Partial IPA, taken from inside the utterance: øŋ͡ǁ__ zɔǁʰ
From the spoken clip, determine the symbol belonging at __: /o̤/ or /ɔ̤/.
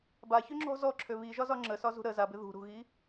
ɔ̤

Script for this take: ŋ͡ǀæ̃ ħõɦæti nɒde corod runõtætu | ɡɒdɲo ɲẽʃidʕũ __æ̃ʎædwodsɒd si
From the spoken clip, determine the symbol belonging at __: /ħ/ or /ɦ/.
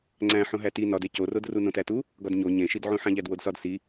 ħ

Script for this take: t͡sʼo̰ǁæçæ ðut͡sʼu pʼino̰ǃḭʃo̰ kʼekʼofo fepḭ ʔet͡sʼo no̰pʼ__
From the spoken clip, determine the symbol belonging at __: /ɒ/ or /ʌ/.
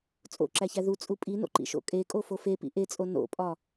ɒ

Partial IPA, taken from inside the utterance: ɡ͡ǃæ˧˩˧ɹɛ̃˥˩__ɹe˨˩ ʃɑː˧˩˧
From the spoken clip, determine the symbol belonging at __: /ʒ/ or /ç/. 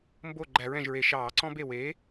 ʒ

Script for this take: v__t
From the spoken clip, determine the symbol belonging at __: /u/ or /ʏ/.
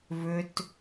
ʏ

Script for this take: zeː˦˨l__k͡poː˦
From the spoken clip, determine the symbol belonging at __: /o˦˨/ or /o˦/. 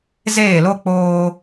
o˦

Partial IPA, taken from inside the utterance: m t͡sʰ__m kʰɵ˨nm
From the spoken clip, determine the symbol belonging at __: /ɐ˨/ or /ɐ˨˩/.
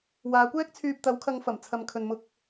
ɐ˨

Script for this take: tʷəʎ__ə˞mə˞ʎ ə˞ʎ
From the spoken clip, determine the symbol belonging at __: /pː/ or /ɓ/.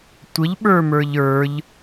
ɓ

